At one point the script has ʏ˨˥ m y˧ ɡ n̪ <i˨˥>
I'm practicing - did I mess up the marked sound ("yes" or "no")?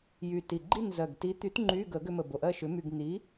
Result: no